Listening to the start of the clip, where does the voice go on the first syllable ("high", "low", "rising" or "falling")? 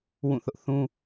falling